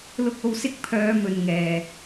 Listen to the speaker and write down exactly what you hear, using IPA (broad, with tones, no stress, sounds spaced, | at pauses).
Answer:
l ʊ˨ k̚ o˨ w s ɪ˨˥ k̚ pʰ œː˨˧ m ɵ˨ n ŋ ɛː˨